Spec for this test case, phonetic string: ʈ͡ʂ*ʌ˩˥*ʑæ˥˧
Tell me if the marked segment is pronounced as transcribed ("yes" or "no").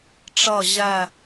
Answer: no